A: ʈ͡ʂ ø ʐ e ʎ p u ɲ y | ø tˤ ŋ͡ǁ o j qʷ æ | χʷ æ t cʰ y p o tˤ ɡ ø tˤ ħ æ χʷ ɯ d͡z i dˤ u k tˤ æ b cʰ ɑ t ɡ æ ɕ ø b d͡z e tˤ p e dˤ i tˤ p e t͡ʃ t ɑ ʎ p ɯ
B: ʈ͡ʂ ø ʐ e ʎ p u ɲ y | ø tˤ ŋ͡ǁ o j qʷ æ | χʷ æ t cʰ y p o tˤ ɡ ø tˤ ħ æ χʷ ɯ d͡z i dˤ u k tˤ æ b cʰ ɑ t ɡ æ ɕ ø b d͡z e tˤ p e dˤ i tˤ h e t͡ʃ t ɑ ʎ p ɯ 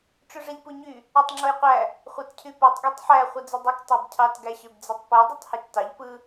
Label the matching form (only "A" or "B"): B